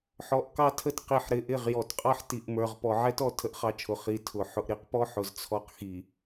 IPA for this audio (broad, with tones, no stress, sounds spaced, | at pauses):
ħ ɔ˨ ʔ k ɑ˦ tʰ ə˦ t q i˨ ħ ɾ ɪ˨ ʔ ɪ˦˨ ʁ j ɔ˨ t qʼ ɑ˦ ħ t i˨ ʔ m ə˞˨ ʁ p ɔ˨ ʕ ɛ˦ t ɔ˨ tʰ ə˦ ʔ χ ɑ˦ t͡ʃʰ ʊ˨ χ i˨ tʰ ʊ˨ ħ ʊ˨ ʔ ɾ i˦ q p ɔ˦ ħ ʊ˨ z t͡sʰ ɔ˦ q x i˨